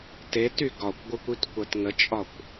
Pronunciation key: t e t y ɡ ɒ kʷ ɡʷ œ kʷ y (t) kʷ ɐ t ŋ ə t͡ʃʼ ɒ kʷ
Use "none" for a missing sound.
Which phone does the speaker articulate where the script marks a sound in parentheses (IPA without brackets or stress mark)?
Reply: t